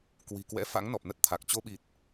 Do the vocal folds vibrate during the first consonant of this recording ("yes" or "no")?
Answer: no